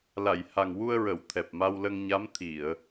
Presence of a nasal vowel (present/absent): absent